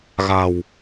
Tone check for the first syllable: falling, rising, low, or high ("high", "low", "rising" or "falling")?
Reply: low